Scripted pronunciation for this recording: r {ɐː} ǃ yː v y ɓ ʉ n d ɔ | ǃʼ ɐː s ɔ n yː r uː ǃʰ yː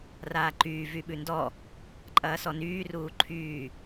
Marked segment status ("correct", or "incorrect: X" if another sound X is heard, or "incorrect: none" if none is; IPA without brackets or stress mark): incorrect: aː